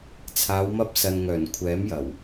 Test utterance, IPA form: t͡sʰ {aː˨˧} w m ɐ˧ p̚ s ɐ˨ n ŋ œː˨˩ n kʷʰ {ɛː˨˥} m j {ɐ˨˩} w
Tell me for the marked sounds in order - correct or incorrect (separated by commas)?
correct, correct, correct